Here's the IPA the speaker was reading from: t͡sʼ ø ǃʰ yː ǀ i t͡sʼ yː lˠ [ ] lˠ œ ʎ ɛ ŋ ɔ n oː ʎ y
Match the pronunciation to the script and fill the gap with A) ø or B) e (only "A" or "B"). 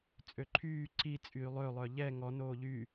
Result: A